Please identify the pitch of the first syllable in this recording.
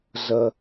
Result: low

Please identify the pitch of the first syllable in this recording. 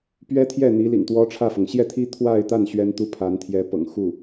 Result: high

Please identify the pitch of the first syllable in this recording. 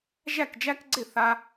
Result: falling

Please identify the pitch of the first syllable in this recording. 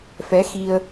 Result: rising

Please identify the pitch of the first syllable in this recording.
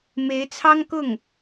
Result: rising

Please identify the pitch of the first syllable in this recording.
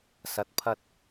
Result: rising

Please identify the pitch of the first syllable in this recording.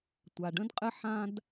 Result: low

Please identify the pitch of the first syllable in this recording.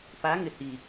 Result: rising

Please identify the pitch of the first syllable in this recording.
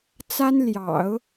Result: high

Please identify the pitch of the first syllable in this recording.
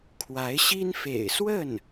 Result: rising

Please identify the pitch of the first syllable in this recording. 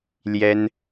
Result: high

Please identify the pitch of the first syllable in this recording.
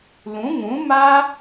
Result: rising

